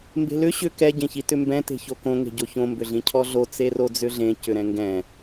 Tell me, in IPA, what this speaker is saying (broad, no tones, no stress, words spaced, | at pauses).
mbe̤lʏ ɕʏ kɛ ɟẽçitʏmbɛ̃ te̤çokõ ŋe̤ɟoçõ mbʏɮĩcʰɔɮo t͡serod͡zʏɮẽ cʏɾɛ̃ŋɡɛ̃